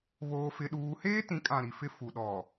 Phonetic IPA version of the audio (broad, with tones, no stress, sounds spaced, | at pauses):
β oː˦ f ɪ˦ ɗ uː˦ h eː˦ t ĩ˨˦ kʼ ã˨ ɾ i˨ f ɪ˦˨ f u˨ ɗ ɔ˨